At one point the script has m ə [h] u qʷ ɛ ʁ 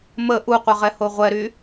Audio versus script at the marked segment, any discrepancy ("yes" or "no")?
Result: yes